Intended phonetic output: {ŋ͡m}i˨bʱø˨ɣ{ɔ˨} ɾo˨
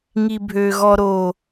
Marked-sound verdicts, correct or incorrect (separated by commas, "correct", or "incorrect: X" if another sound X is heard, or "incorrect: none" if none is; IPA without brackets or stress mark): incorrect: ŋ, correct